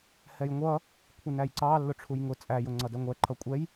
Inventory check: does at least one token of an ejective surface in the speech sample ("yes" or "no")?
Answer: yes